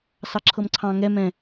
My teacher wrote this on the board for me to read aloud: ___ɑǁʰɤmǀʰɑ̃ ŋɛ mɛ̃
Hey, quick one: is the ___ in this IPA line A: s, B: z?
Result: A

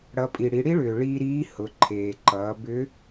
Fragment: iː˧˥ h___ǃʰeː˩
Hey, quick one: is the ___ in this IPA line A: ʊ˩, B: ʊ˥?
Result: A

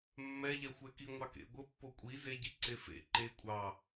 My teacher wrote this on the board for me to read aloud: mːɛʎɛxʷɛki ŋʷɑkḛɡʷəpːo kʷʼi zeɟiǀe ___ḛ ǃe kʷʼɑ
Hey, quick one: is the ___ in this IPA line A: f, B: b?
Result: A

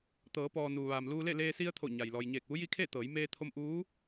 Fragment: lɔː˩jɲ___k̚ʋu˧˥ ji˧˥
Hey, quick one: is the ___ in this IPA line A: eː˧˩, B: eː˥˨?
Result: A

